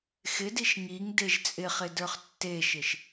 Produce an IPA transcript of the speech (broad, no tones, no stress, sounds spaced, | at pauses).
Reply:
x ɪ d i ʃ ŋ i ŋ d e ʒ t͡sʼ ɪ χ ɪ d ə˞ χ tː e ʃ ɪ ʃ